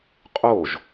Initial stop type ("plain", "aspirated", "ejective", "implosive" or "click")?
ejective